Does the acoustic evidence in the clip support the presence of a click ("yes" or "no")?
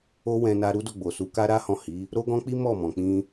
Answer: no